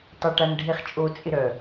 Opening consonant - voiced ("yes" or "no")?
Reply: no